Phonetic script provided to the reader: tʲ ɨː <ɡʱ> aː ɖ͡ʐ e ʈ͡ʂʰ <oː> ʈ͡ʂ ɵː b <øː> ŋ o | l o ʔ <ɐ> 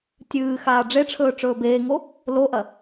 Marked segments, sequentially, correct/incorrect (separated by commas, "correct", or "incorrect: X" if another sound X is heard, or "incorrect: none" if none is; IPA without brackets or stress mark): incorrect: x, incorrect: ɵː, incorrect: eː, correct